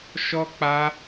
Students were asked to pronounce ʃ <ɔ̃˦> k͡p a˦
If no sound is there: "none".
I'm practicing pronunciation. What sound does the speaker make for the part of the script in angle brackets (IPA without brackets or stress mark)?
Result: ɔ˦